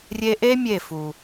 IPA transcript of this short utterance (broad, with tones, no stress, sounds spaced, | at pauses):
rʲ e˧ ʔ e˦ mʲ e˦˨ f u˨